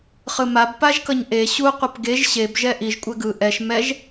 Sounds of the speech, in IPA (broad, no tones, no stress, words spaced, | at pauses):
χɯmab paʒkʌɲʔe ɕu qʷʌpɡeʒ ɕeb ʒɛʔiʒ kʷʼɛɡɯ ʔɛʃ mɛʒ